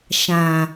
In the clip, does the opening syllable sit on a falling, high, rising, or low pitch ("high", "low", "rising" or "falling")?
low